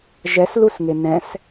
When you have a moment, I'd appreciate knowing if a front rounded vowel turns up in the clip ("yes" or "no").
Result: no